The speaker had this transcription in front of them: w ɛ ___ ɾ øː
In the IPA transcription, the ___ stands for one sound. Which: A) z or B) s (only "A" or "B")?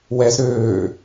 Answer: A